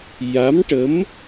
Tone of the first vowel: rising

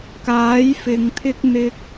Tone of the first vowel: rising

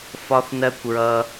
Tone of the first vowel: high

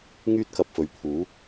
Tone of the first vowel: high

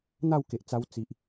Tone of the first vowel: falling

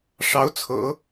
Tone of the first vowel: rising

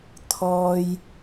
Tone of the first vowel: low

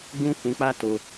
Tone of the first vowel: high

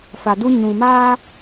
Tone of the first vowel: low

